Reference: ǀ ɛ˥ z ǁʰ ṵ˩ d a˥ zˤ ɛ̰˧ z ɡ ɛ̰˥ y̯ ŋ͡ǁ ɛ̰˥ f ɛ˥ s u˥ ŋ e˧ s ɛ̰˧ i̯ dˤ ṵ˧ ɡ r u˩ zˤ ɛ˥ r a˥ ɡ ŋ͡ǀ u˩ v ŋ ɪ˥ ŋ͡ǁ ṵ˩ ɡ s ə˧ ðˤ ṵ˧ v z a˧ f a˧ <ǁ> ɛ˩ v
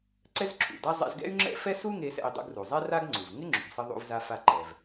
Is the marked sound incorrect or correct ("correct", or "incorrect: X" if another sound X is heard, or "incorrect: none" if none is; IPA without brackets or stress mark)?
incorrect: ǃ